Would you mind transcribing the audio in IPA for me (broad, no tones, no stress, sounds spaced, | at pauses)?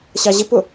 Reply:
ɕ ɑ ʑ ɪ p ʊ